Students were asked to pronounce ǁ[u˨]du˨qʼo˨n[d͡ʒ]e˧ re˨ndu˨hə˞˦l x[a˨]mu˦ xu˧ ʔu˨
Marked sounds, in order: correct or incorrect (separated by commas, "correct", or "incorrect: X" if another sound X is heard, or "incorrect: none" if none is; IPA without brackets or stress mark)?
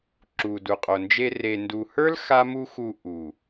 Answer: correct, correct, incorrect: a˦